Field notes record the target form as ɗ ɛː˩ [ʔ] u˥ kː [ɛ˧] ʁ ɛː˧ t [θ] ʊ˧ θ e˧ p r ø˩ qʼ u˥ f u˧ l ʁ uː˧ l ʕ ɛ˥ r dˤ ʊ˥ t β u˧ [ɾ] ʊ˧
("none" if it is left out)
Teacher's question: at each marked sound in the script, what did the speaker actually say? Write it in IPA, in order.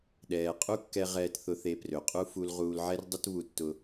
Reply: qʼ, ɛ˧, θ, tː

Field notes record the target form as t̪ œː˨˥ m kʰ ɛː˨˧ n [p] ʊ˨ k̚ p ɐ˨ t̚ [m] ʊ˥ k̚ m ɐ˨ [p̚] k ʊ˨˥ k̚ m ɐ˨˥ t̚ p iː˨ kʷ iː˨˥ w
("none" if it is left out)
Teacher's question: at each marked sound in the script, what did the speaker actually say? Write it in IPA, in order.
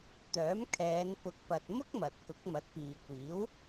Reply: p, m, t̚

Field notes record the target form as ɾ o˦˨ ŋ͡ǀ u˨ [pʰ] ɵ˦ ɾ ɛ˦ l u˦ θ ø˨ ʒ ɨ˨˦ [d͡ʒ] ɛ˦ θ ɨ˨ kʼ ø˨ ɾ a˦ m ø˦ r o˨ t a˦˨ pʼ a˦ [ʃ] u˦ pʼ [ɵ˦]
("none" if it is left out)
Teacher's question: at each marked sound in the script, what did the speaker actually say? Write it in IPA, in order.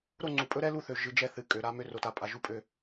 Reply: pʼ, d͡ʒ, ʒ, ø˦

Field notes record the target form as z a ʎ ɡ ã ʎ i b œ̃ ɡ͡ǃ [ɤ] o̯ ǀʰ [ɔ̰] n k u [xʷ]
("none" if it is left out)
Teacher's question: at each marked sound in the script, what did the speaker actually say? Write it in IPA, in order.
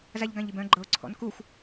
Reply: ɤ, ɔ̰, xʷ

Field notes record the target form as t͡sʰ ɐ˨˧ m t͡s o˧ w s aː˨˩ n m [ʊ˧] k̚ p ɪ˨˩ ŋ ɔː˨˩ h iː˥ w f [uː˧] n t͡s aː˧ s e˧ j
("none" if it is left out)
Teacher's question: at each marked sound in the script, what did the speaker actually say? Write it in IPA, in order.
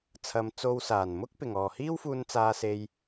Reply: ʊ˥, uː˧

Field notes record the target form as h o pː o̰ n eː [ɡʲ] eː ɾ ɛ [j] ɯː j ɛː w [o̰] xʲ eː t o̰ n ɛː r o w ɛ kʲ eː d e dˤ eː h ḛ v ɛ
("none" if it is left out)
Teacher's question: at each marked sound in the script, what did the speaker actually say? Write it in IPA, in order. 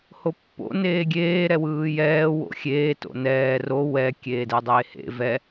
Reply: ɡʲ, w, o̰

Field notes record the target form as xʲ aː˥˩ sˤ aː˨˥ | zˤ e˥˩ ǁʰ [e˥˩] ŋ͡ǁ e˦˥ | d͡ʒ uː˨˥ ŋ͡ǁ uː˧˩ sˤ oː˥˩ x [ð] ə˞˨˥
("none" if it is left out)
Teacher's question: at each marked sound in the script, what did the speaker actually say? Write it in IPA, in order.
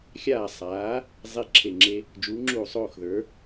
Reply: e˧˩, ð

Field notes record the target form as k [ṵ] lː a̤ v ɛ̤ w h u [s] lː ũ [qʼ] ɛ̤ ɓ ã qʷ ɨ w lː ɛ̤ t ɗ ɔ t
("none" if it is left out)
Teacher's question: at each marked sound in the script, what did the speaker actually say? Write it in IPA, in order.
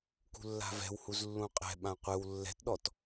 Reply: ṳ, z, qʼ

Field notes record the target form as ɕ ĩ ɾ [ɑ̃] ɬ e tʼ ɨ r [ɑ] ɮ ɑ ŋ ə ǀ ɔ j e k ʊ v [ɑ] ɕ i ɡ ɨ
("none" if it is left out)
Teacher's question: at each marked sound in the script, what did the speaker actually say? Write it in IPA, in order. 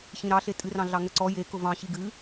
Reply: ɑ, ɑ̃, ɑ̃

